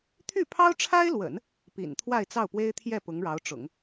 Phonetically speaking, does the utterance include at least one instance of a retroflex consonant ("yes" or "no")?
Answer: yes